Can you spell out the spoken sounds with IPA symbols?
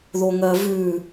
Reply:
ðoŋɜvʉ

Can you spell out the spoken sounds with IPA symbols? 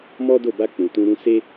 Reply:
mɔ˦do˦˨ ba˧k͡pũ˨ tũ˧ ɾũ˧se˦

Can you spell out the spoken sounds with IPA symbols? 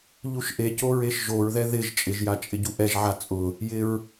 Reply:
ʎuʃʔeco ɹeʃʒoɹðɛ ðɪʒ t͡ʃʼɪʒja t͡ʃʼɪɟuʔɛʒʕa t͡sʼʊ | jɪɹ

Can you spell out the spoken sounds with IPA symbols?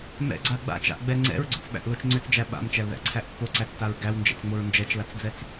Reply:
mɛ̰ɡ͡ǀa ɡ͡ba̰t͡ʃa̰ʔɡ͡bɛ ŋ͡ǀɛ̰ɹɡ͡ǀʏt͡sɓæ̰ʔlot͡ʃ ŋ͡ǀʏt͡sd͡ʒæ ɓa̰mt͡ʃælðæ̰ǀʰæʔ pːoǀæt͡staɹ ɡæwnd͡ʒɛ̰t͡sŋ͡moɹ nd͡ʒɛt͡ʃlat͡sd͡zɛt͡s

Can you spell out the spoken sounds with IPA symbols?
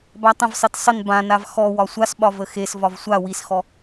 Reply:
batˤə̃vsˤet sˤən bãnav xɔwɒ sʷasɓɒ vəxesvɒv sʷa wisxɔ

